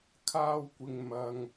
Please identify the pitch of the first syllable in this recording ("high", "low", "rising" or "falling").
high